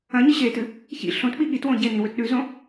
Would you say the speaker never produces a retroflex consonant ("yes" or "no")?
yes